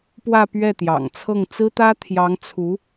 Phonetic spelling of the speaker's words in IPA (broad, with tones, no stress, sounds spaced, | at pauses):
p w ä˥˧ p ɥ ɛ˥˩ t̪ j ɑ̰˨˩ ŋ t͡sʰ ɤ˥˩ ŋ t͡s ɹ̩˥ t̪ ä˥ t̪ʰ j ɑ˧˥ ŋ t͡sʰ u˧˥